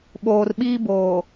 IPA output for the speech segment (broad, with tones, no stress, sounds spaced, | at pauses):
ɓ oː˨ r ɓ iː˦ b oː˨